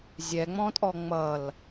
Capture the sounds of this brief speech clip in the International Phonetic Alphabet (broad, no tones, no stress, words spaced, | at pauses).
zʲɛŋ͡mɔ̃tʼɔ ŋ͡mʌl